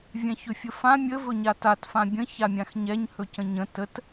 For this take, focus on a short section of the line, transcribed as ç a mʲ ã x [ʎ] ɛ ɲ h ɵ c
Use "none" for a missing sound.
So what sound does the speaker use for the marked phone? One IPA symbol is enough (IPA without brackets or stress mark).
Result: ɲ